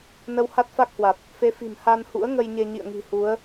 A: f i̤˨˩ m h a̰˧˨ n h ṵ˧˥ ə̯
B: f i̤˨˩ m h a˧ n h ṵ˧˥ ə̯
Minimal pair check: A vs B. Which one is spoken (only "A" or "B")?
B